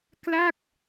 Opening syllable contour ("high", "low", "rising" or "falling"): falling